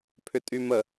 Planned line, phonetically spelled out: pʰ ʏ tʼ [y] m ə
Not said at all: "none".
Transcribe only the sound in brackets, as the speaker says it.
y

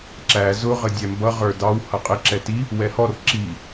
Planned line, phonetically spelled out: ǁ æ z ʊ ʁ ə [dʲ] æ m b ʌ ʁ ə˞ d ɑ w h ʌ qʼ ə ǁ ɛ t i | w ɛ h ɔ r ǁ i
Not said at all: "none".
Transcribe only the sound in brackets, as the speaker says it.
dʲ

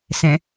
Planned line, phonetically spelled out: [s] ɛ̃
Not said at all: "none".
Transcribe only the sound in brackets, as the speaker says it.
s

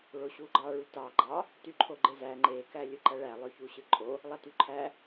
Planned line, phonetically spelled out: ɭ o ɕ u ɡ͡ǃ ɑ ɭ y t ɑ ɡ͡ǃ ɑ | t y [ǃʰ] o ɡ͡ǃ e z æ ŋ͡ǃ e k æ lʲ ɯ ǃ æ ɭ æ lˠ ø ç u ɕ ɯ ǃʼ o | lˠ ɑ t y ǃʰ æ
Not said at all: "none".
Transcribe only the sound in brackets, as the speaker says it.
ǃʰ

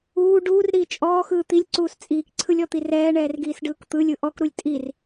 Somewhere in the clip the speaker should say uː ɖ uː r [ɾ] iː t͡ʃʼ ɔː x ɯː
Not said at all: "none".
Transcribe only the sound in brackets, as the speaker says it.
ɾ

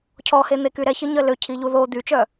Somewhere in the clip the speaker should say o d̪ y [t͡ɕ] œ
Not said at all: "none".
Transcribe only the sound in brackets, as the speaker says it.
t͡ʃ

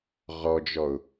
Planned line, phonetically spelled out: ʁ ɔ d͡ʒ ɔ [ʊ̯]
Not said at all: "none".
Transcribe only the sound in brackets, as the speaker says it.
ʊ̯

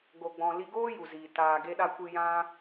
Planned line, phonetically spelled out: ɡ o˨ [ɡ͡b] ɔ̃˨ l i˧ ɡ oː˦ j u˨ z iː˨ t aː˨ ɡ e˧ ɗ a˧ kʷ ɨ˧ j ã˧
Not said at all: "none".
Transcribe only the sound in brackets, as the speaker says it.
ɡ͡b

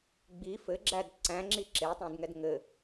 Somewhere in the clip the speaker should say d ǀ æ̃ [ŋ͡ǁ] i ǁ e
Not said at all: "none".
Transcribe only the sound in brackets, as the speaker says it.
ŋ͡ǁ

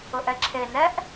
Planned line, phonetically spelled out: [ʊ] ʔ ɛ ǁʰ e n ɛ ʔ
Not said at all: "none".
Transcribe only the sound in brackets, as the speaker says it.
ʊ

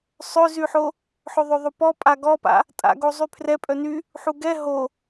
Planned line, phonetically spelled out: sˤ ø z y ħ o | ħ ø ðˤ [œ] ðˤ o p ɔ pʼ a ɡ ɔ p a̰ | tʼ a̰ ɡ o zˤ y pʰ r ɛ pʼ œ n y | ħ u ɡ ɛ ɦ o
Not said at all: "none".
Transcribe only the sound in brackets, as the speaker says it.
ø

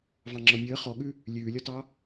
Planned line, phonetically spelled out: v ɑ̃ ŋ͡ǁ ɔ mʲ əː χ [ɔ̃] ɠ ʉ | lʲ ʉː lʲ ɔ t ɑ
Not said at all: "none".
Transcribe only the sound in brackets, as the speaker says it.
ɔ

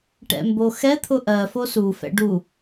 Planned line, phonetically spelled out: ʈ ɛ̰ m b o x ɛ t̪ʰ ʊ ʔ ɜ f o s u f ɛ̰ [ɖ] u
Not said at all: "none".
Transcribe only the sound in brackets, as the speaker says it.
ɖ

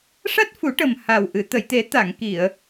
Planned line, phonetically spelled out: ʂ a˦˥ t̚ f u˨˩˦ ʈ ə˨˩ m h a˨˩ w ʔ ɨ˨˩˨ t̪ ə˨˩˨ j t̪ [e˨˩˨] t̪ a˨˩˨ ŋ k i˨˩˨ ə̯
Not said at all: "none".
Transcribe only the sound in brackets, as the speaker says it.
e˨˩˦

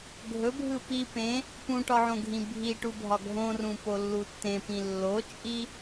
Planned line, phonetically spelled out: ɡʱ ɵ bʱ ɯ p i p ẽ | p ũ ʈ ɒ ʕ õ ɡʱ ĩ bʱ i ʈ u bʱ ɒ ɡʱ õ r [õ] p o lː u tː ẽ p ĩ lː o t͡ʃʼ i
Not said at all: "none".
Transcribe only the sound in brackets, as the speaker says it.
ũ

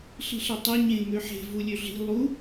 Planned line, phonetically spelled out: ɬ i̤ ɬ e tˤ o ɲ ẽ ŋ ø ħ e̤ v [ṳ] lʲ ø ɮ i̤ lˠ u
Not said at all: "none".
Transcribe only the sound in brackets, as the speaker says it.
u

